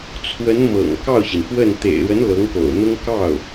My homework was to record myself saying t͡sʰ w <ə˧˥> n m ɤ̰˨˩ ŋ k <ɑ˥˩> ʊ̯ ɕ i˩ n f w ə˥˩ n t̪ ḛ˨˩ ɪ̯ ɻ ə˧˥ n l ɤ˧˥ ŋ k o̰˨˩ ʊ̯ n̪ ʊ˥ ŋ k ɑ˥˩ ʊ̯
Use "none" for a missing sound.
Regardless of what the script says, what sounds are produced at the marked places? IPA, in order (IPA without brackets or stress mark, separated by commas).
ə˧˥, ɑ˥˩